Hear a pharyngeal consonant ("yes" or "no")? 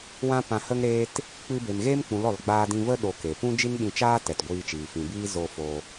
no